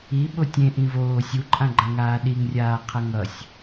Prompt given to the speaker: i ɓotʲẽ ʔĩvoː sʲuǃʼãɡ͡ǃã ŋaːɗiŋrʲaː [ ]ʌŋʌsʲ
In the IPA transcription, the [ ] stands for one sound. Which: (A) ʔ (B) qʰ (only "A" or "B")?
B